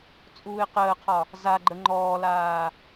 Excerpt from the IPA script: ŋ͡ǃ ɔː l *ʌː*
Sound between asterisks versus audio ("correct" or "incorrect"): incorrect